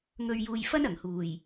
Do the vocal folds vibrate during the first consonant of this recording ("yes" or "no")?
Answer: yes